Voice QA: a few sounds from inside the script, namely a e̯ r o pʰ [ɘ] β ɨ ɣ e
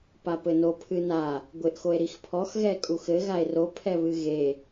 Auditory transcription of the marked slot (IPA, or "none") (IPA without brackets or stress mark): ɛ